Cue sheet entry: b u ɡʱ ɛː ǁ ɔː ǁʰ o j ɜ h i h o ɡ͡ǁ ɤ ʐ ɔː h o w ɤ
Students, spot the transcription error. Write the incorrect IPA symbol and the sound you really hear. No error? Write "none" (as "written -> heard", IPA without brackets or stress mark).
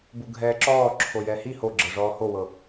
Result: ɜ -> ɛ